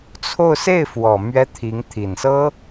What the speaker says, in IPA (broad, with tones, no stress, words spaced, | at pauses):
t͡sʰo˥˧ʊ̯ se˥˩ɪ̯fwɔ˨˩ mɥɛ˥t̪ʰi˧˥ŋ t̪ʰi˨˩nsɤ˥